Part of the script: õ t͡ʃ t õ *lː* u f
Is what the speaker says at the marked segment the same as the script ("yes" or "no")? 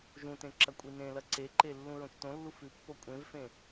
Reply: yes